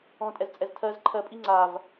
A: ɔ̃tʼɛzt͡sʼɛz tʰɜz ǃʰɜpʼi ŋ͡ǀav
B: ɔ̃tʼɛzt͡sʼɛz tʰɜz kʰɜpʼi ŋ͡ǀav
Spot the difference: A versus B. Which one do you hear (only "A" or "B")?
A